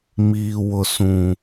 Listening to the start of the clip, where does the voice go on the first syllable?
low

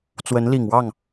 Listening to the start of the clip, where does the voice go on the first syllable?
rising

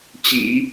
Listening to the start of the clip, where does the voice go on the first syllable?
low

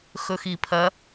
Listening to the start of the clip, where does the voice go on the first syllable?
low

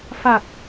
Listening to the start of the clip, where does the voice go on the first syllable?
low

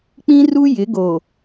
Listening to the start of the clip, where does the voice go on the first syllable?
high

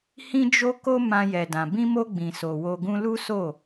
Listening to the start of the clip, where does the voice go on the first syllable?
high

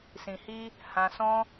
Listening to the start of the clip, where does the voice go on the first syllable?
low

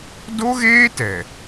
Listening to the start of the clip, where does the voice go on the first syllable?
high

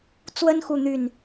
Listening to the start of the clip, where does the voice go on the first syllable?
high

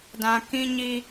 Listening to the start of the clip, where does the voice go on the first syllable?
low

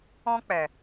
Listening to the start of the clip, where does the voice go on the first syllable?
high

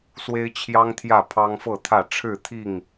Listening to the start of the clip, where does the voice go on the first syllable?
high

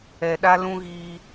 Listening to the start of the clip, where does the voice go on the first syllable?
low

